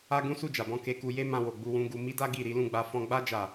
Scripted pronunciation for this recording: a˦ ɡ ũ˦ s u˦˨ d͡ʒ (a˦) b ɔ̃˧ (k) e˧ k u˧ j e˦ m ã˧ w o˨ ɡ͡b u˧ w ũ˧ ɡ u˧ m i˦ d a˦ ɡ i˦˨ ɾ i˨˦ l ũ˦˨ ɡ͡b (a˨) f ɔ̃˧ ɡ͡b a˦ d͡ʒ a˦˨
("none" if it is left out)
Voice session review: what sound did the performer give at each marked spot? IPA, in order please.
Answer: a˨, k, a˧

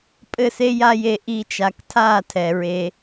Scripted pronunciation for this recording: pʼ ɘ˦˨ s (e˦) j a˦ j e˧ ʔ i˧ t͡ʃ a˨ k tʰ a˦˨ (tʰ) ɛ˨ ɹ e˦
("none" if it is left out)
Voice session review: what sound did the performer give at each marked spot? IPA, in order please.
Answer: e˦, tʰ

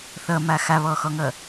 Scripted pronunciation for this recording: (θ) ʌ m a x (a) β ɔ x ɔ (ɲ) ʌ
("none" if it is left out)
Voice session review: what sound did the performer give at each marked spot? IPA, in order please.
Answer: θ, a, ŋ

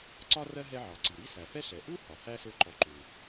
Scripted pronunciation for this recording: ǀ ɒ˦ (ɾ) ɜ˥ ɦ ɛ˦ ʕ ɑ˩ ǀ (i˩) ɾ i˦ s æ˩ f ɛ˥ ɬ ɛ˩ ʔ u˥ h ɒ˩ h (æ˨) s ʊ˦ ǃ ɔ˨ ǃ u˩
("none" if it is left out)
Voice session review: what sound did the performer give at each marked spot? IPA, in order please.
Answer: r, i˩, æ˥

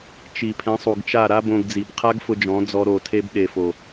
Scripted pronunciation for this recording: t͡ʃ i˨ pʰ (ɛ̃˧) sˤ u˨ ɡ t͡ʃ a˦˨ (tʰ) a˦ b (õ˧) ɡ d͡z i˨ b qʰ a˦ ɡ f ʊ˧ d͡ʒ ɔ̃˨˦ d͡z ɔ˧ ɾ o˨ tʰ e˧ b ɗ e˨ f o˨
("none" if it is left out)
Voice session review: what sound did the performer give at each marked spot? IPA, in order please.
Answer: ɛ̃˨˦, ɾ, õ˧

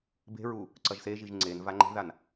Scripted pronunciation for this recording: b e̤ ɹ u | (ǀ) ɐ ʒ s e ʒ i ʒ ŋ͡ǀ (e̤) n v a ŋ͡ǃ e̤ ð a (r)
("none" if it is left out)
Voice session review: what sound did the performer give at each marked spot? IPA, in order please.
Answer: ǀ, e, n

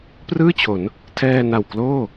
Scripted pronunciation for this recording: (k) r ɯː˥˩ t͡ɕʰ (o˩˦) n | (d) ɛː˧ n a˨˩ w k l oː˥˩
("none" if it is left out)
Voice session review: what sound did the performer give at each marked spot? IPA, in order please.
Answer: p, o˩˦, tʰ

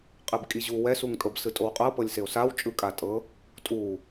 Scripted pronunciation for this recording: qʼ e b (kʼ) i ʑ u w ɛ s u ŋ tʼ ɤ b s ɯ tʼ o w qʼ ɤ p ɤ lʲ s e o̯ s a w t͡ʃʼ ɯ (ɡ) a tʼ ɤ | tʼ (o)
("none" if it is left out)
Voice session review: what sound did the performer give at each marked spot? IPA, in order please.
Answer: kʼ, kʼ, u

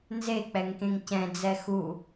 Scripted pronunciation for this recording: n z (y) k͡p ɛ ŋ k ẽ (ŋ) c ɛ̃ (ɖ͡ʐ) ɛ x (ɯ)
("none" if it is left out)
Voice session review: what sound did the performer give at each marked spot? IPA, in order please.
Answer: e, ŋ, d͡z, u

